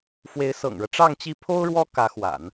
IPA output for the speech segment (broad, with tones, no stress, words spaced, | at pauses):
fwe˧˥ɪ̯sɤ̰˨˩ŋɻɤ˦ ʈ͡ʂɑ˥˧ŋt͡ɕi˥˩ pʰo˥ʊ̯ɻwɔ˥ kä˧˥xwa̰˨˩˦n